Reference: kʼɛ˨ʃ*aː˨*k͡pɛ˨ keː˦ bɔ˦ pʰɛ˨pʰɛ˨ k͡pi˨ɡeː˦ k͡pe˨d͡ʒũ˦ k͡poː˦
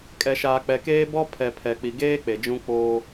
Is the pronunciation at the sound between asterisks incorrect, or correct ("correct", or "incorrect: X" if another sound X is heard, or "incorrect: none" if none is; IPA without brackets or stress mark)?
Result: correct